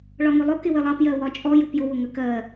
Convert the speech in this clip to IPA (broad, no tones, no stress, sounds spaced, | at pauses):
ɭ ɒ ŋ ʊ lˠ ʊ k ɪ w ɪ lˠ ɑ p j ɜ w ɒ t͡ʃʼ ɔ j u p j ʊ w ʊ ŋ ə k ɜ